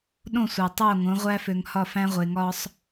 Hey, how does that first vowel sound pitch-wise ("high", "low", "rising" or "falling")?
falling